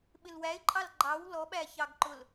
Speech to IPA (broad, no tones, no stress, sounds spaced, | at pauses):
ɓ ɪ l w æ ɪ̯ ǃʼ ɑ l ɡ͡ǃ ɑ w l ɔ ɓ æ ç ɑ ɡ ǃ ʊ l